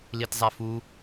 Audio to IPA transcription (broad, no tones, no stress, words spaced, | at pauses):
litzˤɛfu